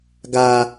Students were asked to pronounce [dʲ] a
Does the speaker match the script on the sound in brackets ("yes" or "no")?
no